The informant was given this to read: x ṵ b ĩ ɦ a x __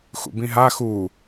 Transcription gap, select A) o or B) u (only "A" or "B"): B